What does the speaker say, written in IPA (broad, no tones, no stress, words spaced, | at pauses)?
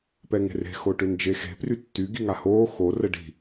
pɛŋe̤re̤ xoʈønd͡ʒexe̤ prytːy ɡiŋahoː xo rəɖi̤